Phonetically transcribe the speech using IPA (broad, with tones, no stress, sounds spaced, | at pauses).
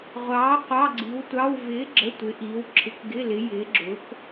ʁʷ ɑː˨˥ qʷ ɑ˧˥˧ ɡ͡ǀ i˨˥ w tʷ ɑ˧˥˧ w v ɪː˨˥ ɡ͡ǁ ə˧˥˧ tʷ ɪ˨˥ ʔ iː˨˥ w ǁʰ ɪ˨˥ k ɡ ɪ˧˥˧ l ɪ˨˥ j ɪː˨˥ ɡ͡ǁ ʊ˨˥ k